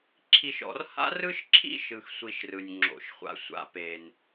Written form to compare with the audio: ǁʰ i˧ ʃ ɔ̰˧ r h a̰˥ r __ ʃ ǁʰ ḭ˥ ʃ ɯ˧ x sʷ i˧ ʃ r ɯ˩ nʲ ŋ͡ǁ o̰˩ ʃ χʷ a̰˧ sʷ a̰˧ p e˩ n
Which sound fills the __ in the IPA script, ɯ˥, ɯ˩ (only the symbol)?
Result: ɯ˥